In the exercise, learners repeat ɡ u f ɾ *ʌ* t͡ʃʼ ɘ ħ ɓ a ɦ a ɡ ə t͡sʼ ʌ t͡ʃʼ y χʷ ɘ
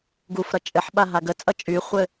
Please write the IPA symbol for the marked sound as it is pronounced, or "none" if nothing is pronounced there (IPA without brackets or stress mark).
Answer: ʌ